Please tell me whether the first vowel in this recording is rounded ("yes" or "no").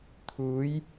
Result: yes